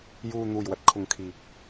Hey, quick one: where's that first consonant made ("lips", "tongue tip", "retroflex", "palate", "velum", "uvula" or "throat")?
palate